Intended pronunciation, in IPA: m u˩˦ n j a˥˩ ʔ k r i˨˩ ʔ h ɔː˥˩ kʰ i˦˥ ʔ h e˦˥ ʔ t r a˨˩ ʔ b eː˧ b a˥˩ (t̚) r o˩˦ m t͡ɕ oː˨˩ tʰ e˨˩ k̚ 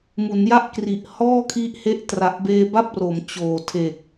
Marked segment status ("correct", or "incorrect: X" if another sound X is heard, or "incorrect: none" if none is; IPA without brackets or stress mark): incorrect: p̚